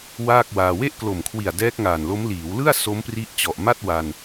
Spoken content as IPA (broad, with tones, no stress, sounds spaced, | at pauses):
w aː˥˩ k̚ w aː˧ w e˥˩ ʔ k l o˨˩ m kʰ w i˨˩ a̯ d ɛː˦˥ k̚ ŋ aː˨˩ n l o˦˥ m l iː˩˦ w l ɯ˥˩ a̯ s o˦˥ m p r i˦˥ ʔ t͡ɕ ɔ˨˩ ʔ m a˥˩ t̚ w a˧ n